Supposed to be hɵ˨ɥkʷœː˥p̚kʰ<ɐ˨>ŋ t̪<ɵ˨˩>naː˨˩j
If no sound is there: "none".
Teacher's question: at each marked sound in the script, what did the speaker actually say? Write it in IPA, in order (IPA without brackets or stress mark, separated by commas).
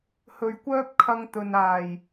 ɐ˧, ɵ˨